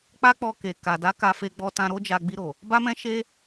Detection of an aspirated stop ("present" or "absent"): absent